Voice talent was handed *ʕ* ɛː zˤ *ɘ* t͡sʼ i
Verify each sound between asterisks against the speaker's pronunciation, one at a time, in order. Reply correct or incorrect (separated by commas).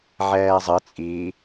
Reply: correct, correct